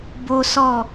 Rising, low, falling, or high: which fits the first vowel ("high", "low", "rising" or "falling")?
high